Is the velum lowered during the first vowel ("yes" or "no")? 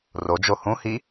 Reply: no